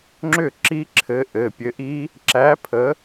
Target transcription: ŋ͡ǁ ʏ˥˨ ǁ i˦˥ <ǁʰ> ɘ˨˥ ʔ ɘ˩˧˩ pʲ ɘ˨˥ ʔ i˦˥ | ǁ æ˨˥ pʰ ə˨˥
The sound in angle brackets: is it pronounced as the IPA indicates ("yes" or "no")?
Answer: yes